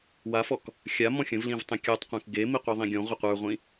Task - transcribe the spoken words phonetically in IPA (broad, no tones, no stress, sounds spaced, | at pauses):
w a f ɔ k | xʲ a m ɔ̃ xʲ ə̃ v l ĩ v tˤ ẽ kʲ ə˞ tˤ qʷ ẽ k ɡ e m i qʷ e ðˤ ĩ ɡʲ ɔ̃ ʁʷ ə qʷ ə˞ ʁʷ ĩ